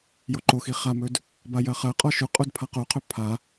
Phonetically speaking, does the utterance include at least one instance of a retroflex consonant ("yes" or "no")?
no